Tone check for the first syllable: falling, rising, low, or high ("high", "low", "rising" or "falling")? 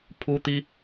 high